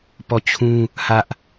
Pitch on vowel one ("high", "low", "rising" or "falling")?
falling